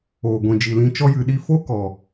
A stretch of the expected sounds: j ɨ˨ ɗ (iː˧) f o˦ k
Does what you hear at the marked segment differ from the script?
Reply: yes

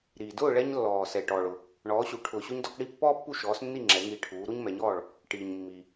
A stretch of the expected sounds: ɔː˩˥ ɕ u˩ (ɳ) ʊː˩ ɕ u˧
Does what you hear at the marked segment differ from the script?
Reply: yes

